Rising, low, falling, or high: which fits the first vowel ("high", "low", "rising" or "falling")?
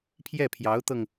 falling